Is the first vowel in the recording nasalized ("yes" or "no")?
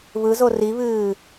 no